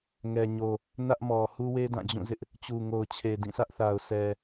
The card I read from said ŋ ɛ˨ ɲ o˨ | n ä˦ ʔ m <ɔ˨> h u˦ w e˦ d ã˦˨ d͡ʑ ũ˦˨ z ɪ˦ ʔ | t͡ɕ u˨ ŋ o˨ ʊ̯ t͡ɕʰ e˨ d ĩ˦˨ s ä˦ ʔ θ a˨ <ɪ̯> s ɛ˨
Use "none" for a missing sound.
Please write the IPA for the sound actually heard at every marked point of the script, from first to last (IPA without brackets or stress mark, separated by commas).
ɔ˨, ʊ̯